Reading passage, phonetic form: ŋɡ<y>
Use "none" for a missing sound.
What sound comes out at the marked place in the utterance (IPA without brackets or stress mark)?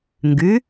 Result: y